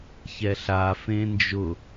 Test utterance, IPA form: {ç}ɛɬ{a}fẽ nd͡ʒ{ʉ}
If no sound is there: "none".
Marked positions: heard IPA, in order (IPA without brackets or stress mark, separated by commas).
ç, a, ʊ